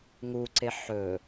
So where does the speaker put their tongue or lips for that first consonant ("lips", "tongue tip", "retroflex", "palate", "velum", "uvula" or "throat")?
velum